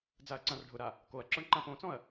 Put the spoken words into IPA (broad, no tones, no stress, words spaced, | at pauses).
d͡zaɐ̯ǀãrɖʱʊɾa | koɐ̯ǁɔɳ ǃãpõt͡sɔ̃ɐ̯